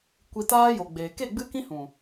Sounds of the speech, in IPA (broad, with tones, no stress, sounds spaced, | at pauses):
kʷ i˨ t aː˦ j o˨ ɡ͡b eː˨ k e˦˨ ɡ͡b ɨ˦ k ĩ˦ h ũ˨